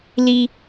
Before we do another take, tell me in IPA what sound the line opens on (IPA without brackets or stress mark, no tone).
l